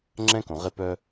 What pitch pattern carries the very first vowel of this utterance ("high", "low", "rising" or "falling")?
high